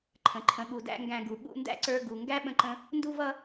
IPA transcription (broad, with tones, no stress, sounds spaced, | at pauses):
ǃʰ ə̃˨ ǃʰ ə̃˨ ɠ u˨ d æ̰˧ ŋ ɡ æ̃˧ ɡ u˨ ɠ ṵ˧ n d æ̰˦ ǀ ə˞˧ ɡ u˨ ŋ ɡ æ˦ ɓ ə̃˦ ǃ ə̃˦ | n d u˦ v ʌ˦